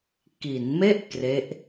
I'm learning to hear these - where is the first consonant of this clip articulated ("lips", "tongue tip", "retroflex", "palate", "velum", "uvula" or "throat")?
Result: velum